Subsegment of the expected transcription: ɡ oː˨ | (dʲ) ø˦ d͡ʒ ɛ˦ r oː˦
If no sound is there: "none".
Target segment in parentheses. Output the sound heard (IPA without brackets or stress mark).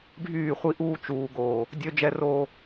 dʲ